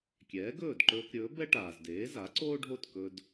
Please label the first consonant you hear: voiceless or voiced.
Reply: voiceless